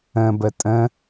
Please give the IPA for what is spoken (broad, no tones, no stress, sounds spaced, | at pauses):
ə̃ b ə tʼ ə̃